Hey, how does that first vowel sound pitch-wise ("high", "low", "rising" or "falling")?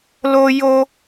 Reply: high